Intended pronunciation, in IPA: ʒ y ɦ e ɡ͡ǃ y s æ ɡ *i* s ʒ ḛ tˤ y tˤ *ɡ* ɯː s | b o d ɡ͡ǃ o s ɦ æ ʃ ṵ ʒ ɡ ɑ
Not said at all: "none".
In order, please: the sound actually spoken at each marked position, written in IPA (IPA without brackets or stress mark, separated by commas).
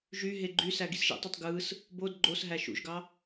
i, ɡ